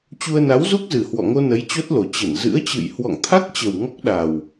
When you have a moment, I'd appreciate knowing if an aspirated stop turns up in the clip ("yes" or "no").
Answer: yes